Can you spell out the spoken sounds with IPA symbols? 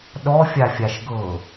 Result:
ɗɔfʲafʲaʃ ɡɤ

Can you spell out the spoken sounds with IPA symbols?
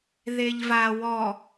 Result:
ðeʎva wɔ

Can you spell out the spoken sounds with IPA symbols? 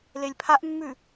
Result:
lelʲpʰaʔmːʉ

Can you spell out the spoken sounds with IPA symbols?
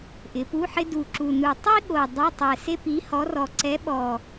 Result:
ʔɪ˩˧pu˧˥˧ħɪ˥ du˨˩ǁu˨˩nu˨˩ tˤi˥ɠo˨˩ dˤe˧˥˧tˤɛ˨˩ se˥pi˨˥hɔ˨˥rɔ˨˩ ǀɛ˨˥ɓɔ˨˩

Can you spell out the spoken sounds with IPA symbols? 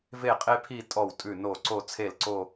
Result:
ve˥˧qʼe˥pʰi˥˧ tʼɔ˥˩wtʼʉ˥˩no˥˩ ǀo˥˧t͡sʰe˥˩lǀo˥˧

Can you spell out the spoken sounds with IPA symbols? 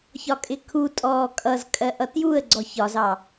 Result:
çɒkʼɪkʰutʼɔː kʼʌzkʼɜ ʔʌtjuə̯ɡ͡ǀɔ çɒzɑ

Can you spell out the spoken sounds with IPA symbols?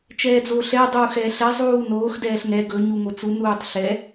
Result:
t͡ʃɛːd͡zoːɬɛ dˤuːxɛːɬɛ zˤuːnoːx dɛːɬŋɛ ɡɵ ɲuŋot͡su nuːtˤɬɛ

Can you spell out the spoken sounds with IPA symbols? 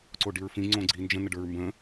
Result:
ǀoɖiɹfĩ ŋ͡ǀõɡ͡ǀi nd͡ʒə̃nəɖə˞ɹ mbə̃

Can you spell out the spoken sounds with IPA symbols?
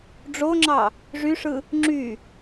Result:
ɖ͡ʐoŋ͡ǁɑ | ʐyʂɯ | ŋ͡ǁy

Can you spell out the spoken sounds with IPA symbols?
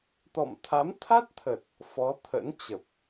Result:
t̪ɔ̰˧˨mt̪ʰa˨˦m t̪ʰa˦˥t̚t̪ʰə˨˩t̚ | fɔ˨˦t̪ʰə̰˧˥nt͡ɕə˨˩p̚

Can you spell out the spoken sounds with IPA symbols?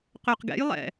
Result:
qøqɡɛ̰jlˠɛ̰

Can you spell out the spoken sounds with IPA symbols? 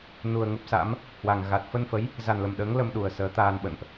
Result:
nu˨˩ə̯ŋə˦˥p̚sa̰˧˥m | hwa˨˩ŋ ɣa˨˩t̚ fə˧nfə˨˦j | za˨˩nlə˨˩mɗəː˨˦ŋ lə˧mɗu˨˩ə̯ səː˨˦t̪aː˧nɓə̰˧˨nʔ

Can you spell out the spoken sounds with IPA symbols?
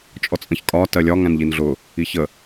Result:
t͡ʃʼɔt͡sʼə̃çkʼɒ tɜlʲɒ ŋæ̃nʎinɮʊ | içə

